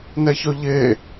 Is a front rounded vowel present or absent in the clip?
present